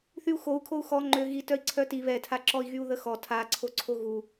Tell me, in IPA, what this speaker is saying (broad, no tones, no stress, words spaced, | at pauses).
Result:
θyu̯xou̯kʰou̯ xɔ ŋ͡ǃø ɣitœi̯ ǀʰœti βɛtʰaǁɔi̯ ɣyu̯ðəxɔ tʰaǀʰoǀʰo ɣu